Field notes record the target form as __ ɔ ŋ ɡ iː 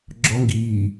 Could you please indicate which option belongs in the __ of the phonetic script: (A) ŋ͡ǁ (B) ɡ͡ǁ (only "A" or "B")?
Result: B